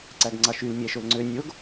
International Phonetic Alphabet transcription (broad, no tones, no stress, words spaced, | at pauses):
ǀæɡŋ͡ǀɑʃyl mʲæʃolŋ͡ǀø nʲoɡ